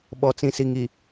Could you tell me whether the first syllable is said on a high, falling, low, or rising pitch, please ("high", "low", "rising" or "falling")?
low